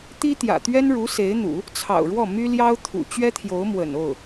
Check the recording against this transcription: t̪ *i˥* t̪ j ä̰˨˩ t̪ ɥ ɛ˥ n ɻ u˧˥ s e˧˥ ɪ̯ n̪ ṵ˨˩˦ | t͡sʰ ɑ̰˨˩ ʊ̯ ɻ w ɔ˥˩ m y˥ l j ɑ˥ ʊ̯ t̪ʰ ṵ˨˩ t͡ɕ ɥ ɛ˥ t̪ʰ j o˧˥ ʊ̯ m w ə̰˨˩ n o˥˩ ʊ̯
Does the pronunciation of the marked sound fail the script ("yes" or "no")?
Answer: no